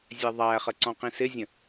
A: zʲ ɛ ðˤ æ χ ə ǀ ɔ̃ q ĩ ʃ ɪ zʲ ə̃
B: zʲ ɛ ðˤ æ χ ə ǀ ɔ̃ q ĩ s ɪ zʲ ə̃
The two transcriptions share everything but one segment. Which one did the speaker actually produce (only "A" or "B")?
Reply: B